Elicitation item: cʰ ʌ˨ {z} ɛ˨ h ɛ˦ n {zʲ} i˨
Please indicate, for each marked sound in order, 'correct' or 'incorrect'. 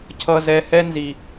correct, incorrect: z

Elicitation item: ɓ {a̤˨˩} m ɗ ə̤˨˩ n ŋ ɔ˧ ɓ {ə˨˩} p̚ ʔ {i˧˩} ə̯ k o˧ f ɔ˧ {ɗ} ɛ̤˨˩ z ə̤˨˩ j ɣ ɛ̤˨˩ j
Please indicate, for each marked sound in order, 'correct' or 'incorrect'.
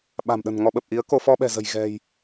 correct, correct, incorrect: i˨˦, incorrect: ɓ

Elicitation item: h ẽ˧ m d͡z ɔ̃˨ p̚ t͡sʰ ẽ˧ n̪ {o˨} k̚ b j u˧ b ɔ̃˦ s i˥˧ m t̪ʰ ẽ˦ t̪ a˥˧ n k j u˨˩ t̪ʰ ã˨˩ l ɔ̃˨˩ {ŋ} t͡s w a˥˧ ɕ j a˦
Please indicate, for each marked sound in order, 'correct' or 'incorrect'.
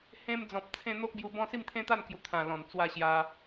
incorrect: o˦, incorrect: n

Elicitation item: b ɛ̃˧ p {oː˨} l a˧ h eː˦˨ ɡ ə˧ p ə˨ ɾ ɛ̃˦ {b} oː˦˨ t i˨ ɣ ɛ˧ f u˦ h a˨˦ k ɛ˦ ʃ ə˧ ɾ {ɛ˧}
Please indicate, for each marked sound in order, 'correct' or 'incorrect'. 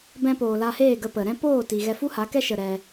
correct, incorrect: p, correct

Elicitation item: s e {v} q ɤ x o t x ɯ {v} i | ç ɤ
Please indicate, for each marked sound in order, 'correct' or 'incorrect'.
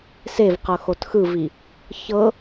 correct, correct

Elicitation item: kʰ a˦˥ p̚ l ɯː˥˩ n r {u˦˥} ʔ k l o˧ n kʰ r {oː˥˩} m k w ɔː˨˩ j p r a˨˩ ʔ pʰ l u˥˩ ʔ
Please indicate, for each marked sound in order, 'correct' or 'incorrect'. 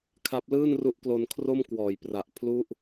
correct, incorrect: o˥˩

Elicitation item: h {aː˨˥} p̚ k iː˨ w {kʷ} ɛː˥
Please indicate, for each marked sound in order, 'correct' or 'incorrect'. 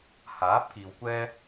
correct, correct

